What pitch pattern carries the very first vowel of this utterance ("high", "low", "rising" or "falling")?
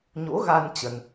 rising